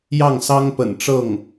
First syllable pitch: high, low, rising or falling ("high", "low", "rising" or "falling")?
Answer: falling